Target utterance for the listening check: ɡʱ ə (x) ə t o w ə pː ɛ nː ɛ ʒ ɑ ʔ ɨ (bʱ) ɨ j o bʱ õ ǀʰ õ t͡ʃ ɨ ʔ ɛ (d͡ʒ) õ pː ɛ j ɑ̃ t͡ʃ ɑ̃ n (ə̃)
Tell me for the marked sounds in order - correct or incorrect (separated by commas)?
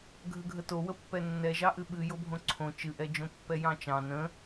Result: incorrect, incorrect, correct, correct